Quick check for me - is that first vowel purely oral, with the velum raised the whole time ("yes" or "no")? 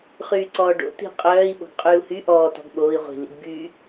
yes